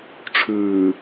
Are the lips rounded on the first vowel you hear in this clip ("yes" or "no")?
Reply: yes